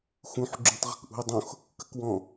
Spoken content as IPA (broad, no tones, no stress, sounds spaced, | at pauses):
x ũ ħ ɡ͡ǁ ũ tˤ ʁ ə̤ k ʔ ṳ i̯ dˤ õ x | k ə k w ɔ̃